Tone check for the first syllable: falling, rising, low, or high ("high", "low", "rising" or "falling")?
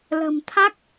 low